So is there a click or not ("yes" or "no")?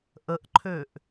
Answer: yes